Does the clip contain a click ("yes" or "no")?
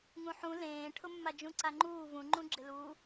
yes